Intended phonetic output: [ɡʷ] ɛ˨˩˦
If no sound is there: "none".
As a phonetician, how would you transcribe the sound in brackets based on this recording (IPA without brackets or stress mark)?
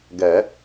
ɡ